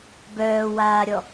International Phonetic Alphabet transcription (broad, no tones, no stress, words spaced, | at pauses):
bœːwaːɾʲɔ